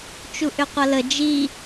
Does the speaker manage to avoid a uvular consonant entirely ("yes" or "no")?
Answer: no